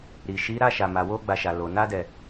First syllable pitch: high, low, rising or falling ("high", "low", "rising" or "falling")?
low